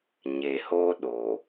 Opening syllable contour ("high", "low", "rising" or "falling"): low